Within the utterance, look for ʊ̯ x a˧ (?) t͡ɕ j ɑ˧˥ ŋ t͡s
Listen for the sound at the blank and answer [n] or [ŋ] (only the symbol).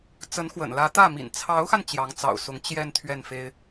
n